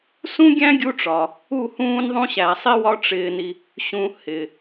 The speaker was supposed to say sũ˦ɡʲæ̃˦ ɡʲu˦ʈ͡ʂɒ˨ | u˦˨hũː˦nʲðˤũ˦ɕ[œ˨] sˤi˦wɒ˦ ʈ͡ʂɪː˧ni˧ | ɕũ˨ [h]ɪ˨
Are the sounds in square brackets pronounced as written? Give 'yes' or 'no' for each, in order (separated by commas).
no, yes